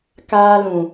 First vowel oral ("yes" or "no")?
yes